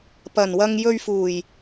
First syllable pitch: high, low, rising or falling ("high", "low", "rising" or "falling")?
low